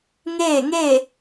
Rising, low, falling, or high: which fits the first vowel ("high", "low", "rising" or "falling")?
falling